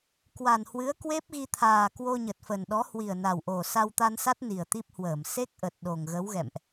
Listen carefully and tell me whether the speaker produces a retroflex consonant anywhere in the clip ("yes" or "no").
no